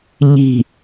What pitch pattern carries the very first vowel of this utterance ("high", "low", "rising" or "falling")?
falling